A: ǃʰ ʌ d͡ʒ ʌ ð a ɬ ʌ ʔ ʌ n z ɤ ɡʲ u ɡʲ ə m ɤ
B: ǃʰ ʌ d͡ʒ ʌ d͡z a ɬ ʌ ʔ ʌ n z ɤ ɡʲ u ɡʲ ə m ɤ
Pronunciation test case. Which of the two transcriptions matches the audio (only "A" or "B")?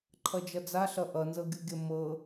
B